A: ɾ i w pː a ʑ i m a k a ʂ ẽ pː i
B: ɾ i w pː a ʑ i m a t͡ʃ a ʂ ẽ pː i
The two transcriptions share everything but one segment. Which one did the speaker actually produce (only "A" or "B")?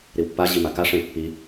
A